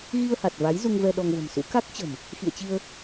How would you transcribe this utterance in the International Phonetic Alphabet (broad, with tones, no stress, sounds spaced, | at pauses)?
ɣ i˧ ə̯ h a˨˩ t̚ v a˨˦ j z u˧ ŋ v ɛ˧ ɗ ɔ˧ ŋ v ə̤˨˩ m s ṵ˧˥ k a˦˥ k̚ t͡ɕ ə̤˨˩ m | x ḭ˧˨ ə̯ t͡ɕ i˧ ə̯